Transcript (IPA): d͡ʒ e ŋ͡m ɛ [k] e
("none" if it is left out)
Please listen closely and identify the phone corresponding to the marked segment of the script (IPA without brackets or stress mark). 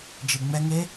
ŋ